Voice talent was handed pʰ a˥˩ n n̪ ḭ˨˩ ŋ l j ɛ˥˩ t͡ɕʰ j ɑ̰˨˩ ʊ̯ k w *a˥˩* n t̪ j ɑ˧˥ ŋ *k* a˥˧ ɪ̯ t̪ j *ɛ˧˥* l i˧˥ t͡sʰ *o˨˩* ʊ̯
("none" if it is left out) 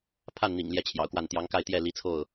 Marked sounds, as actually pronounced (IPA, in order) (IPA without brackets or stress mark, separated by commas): a˥˩, k, ɛ˥˩, o˥˩